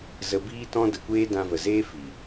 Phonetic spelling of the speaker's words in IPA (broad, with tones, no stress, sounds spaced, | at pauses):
z ə˧ b iː˦ t ɔ̃˧ d ə˨ kʷ eː˧ d ã˧ v ə˨ z eː˦ f iː˨